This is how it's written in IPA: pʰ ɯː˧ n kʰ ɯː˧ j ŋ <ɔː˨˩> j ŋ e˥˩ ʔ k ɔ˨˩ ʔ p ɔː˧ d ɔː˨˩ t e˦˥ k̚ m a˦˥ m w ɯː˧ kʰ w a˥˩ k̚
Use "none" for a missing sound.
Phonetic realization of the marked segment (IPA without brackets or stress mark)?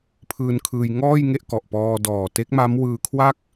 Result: ɔː˥˩